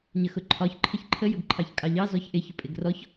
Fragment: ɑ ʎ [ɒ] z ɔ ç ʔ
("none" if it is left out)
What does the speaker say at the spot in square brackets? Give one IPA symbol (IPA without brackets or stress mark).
ɑ